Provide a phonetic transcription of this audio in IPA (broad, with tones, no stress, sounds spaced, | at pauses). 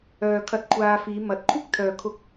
œː˧ kʰ ɐ˧ t̚ kʷʰ aː˧ f iː˨˧ m ɐ˨˥ t̚ kʷʰ ɪ˥ k̚ t̪ʰ œː˨ kʰ ʊ˧ k̚